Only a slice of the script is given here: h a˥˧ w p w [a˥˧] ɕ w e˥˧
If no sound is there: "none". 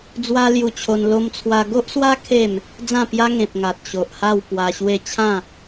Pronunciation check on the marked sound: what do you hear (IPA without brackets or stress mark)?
a˧